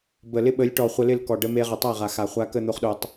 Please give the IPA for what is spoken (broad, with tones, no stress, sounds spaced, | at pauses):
b ə˨ l ɪ˦ ɓ ə˨˦ lʲ ʈ ɔ˨ χʷ ə˧ l ɪ˦˨ l k ɔ˨ ɖ ə˧ m e˧ ʁ ə˨ tˤ a˦˨ ʁ a˨ x a˨ χʷ a˧ k ə˦˨ n̪ o˧ χ ɗ o˧ tˤ